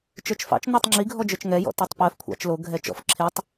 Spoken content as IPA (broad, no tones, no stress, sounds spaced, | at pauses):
t͡ʃ ə˞ t͡ʃ f ɑ̰ t͡ʃ n ɜ tˤ ŋ͡ǁ i ɡʱ ɔ d͡ʒ ə˞ t͡ʃ ŋ ɛ j ɔ̰ t o tˤ p ɜ f kʷʰ ɑ̰ t͡ʃ l o ɡʱ ɛ t͡ʃ ɔ̰ f ǁʰ e tˤ